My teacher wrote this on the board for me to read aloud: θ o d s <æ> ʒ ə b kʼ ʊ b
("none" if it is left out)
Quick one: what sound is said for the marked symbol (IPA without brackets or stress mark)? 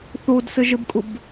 ə